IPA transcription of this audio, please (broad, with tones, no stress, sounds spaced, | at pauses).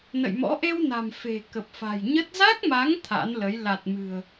n ə̰˧˨ j m ɔ̰˧˥ ʔ e˧ w n a̤˨˩ m f e̤˨˩ k ə˨˩ p̚ f a̤˨˩ j ɲ ə˦˥ t̚ z a˦˥ k̚ m a˨˦ ŋ t̪ʰ a̰˧˥ n l ə˨˦ j l a˨˩ t̚ m ɨ̤˨˩ ə̯